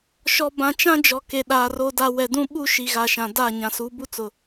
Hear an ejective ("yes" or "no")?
no